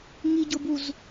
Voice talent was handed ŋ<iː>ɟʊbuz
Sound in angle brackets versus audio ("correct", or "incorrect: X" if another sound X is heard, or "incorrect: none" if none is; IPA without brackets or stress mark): incorrect: i